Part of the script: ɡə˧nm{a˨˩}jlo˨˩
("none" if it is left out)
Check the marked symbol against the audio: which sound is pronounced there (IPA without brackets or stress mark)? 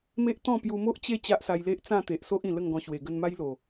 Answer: a˦